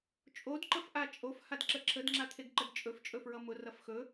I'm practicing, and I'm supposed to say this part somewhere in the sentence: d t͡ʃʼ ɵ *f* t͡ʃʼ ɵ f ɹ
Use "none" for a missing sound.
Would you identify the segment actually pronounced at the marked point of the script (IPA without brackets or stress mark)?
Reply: f